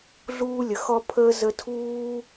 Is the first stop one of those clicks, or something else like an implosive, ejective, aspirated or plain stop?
aspirated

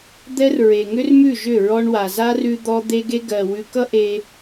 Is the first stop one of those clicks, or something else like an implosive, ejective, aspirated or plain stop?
plain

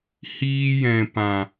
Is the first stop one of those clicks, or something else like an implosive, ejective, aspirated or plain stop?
plain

